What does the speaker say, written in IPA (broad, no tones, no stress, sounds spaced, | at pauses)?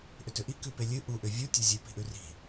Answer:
ʔ ʏ t ʏ ʔ i k ʉ p e lʲ ɨ ʔ u ʔ ʏ vʲ u tʲ ɛ zʲ ʉ p i̤ ʔ ʉ r i̤